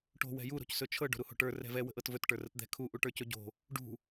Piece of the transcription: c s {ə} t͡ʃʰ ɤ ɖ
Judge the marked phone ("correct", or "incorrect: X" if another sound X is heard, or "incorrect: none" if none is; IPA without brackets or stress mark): incorrect: ɵ